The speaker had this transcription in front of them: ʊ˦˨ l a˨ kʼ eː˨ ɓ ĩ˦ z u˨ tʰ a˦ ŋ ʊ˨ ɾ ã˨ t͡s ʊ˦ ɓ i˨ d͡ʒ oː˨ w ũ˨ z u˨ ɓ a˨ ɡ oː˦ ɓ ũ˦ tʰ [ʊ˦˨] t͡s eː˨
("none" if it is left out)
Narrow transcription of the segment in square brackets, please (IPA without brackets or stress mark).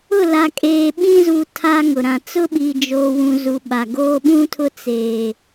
ʊ˦˨